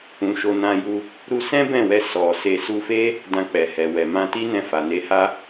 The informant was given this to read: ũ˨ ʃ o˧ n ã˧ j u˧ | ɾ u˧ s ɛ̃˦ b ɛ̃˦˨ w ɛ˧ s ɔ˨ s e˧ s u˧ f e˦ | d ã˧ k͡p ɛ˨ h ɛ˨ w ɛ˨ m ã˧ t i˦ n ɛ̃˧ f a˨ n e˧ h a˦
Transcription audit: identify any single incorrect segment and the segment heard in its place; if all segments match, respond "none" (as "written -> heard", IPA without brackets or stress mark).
none